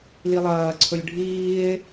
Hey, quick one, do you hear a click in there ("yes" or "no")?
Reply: yes